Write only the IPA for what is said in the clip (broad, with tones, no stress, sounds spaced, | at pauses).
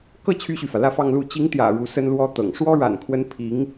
k ɤ˥˩ t͡ɕʰ y˥ ɕ y˨ f ä˩ l ä˥˧ f ɑ˥˧ ŋ l u˥˩ t͡ɕ i˧˥ ŋ t̪ j ä̰˨˩ ɻ u˧˥ s ə˥ n l w ɔ˥ t̪ ɤ̰˨˩ ŋ ʂ w ɔ˥ ɻ a̰˨˩ n kʰ w ə˧˥ n pʰ i˧˥ ŋ